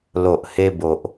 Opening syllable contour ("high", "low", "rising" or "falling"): low